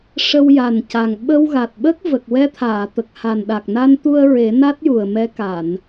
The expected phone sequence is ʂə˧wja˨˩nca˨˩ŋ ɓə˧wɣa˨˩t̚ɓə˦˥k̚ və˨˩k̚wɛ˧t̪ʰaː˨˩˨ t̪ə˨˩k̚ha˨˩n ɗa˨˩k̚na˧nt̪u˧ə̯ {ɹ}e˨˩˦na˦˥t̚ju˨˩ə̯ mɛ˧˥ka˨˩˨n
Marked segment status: correct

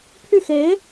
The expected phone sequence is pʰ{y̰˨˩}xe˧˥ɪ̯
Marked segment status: incorrect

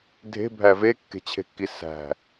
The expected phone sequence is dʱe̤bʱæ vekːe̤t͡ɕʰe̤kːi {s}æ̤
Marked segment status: correct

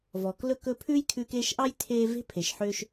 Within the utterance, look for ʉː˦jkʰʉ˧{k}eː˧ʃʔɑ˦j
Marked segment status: correct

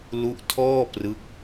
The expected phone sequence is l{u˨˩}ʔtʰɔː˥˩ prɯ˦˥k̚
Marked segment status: incorrect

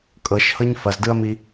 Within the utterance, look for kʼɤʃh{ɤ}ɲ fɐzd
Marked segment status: correct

